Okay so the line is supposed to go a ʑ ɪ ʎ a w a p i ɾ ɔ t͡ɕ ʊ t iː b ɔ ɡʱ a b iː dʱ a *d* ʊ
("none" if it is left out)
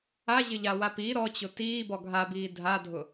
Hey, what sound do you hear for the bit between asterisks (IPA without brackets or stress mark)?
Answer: dʱ